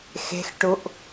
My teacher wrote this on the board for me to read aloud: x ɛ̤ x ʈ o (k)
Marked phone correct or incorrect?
incorrect: ʔ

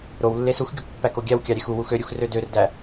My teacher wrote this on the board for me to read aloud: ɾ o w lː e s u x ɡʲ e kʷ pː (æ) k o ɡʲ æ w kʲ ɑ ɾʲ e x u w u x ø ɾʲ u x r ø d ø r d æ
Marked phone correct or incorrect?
correct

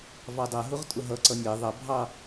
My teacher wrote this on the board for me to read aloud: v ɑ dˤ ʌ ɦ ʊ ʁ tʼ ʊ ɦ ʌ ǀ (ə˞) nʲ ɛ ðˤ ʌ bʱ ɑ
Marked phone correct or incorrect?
incorrect: ʌ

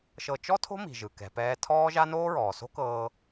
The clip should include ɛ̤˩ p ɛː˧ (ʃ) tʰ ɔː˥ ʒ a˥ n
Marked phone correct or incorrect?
incorrect: none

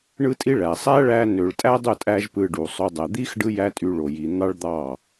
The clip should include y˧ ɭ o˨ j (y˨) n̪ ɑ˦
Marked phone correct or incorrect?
incorrect: i˨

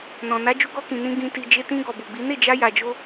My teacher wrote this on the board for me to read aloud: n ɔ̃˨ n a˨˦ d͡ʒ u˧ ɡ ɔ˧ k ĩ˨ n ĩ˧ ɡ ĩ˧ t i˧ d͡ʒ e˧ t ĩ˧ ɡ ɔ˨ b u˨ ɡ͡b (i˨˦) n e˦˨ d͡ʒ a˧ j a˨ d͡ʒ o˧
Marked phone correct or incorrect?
correct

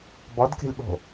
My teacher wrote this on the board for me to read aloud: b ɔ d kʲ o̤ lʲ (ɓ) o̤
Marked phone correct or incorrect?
correct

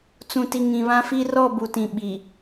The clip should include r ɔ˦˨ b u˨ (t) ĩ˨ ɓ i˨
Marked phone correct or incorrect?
correct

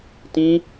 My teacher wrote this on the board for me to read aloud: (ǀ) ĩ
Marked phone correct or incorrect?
incorrect: t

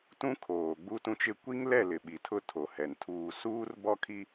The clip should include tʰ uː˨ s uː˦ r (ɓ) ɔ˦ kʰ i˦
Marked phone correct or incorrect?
incorrect: b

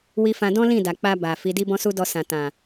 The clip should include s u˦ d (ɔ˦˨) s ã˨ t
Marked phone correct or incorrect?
incorrect: ɔ˧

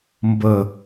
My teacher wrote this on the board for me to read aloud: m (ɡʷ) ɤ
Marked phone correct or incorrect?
incorrect: b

